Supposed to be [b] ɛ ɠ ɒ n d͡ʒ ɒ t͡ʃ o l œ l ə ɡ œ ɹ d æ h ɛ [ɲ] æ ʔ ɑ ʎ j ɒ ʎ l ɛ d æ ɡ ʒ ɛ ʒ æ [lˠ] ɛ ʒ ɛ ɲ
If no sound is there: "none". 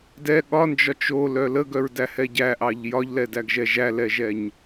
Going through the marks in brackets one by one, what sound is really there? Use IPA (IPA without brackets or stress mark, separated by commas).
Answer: d, ɟ, l